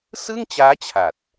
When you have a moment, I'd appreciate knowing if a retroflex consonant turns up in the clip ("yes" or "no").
no